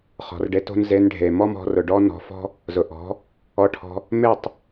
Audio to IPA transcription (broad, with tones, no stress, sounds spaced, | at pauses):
χ ɔ̤˨ r ɖ e˧ t o̤˦ n z e˧ n ɖʱ e˨ m ɔ˦ m ɔ̤˧ r ʊ˨ ɖ ɔ˦ n ɔ̤˧ f ɔ̤˦ | z ʊ˨ ʔ ɔ̤˨˦ | ɔ˧ ʈʰ ɔ̤˧ | m e˦˨ tˤ